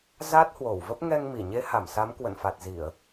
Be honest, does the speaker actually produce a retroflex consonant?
no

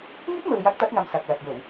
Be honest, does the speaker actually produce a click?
no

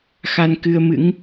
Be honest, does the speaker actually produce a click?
no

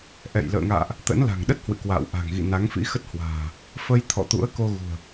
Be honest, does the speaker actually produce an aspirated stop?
yes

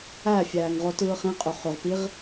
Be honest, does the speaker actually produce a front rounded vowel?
yes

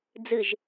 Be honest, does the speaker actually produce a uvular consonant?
no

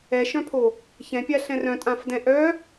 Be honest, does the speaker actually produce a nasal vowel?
yes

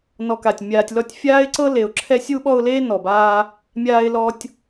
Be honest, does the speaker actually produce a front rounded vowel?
no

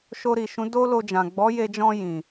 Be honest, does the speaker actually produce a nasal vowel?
yes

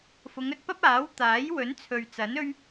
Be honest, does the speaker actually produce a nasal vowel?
no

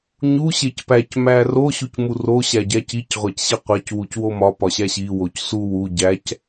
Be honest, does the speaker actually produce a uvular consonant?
yes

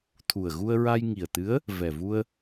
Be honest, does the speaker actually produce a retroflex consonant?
no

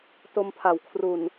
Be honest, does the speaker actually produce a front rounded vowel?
no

